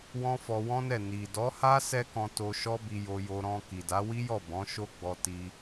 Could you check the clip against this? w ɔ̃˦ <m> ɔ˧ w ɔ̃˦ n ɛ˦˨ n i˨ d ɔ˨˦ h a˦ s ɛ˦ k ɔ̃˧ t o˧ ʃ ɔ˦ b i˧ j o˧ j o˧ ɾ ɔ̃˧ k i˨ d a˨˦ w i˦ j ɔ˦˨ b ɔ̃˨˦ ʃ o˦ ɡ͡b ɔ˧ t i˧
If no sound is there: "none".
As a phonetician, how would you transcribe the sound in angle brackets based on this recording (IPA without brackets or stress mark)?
f